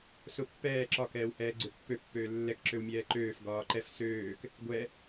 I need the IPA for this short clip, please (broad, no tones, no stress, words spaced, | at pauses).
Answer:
sʊ pːɛː ǁɒ kɛːwhɛːɡ͡ǀøpːø pːøːlːɛk ǁøwmʲɛːǃøːf ɡɒːǃɛf søːk | ɡʷɛ